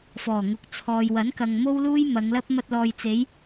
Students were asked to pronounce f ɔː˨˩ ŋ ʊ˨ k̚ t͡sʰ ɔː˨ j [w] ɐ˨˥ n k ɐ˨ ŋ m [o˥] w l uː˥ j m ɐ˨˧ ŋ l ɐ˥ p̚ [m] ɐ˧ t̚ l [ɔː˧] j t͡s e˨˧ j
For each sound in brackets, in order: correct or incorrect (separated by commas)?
correct, correct, correct, incorrect